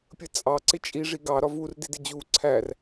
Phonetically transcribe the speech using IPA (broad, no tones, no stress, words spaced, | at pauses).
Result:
pʲət͡sʼɑ ǀɪt͡ʃʼi ʐiɡɑ ɾɒvur didɪd͡ʑu ǀʰær